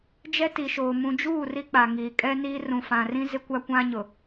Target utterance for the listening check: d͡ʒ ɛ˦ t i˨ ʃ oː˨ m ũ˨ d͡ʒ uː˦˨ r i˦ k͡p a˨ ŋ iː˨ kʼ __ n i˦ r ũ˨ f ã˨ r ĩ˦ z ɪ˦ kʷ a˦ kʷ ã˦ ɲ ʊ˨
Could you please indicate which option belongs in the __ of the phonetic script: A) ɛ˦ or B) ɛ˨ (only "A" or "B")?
A